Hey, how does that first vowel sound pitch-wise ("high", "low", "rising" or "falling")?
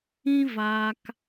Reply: high